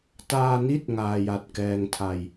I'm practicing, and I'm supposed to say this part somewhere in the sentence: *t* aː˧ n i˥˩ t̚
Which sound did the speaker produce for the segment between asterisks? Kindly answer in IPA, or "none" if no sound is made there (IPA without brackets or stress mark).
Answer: t